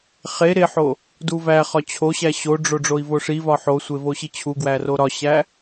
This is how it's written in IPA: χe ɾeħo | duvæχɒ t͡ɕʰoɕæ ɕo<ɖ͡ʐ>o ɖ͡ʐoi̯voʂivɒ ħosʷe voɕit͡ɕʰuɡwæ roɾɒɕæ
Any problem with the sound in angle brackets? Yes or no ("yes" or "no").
no